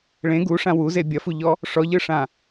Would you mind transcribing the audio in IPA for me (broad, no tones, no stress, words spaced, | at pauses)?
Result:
ɭẽ ɡuʂã wuze bʲɐfuʎɔ | ʂɔʎɯʂã